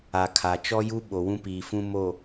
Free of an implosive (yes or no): no